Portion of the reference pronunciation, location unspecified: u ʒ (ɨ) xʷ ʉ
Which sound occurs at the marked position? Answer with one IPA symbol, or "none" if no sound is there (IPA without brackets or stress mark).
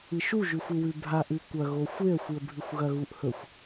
ʉ